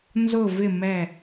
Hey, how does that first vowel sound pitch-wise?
low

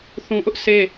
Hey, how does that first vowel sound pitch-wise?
low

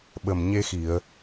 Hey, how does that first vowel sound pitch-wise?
low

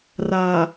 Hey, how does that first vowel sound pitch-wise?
low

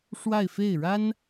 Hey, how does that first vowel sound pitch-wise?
falling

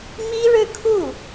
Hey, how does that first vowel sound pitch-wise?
high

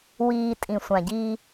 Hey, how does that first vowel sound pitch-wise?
low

